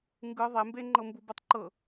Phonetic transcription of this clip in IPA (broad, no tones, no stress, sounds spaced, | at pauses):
ŋ ɡ ɯ ðˤ e m b e ŋ͡ǃ ɤ m b u b ɤ tˤ ǃ ɤ